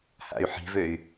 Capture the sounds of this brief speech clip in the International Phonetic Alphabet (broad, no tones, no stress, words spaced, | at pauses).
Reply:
ha̰y̯ħi̤vøy̯